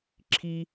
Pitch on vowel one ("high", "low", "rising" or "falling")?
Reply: high